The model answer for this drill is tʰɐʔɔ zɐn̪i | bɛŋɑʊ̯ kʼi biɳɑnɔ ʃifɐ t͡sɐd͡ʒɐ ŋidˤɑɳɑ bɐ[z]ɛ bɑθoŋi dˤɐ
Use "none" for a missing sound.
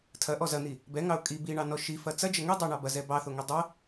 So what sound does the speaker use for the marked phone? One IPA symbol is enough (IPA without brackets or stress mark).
z